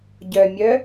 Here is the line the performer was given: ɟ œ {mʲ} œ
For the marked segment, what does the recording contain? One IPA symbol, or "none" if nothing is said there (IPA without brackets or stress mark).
mʲ